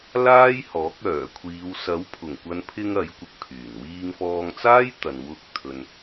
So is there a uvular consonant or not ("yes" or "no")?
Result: no